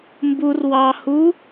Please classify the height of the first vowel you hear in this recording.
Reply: high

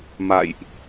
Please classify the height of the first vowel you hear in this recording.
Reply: low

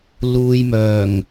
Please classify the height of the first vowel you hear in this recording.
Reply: high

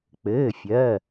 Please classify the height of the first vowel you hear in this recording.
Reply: mid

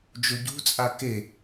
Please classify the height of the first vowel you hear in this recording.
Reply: mid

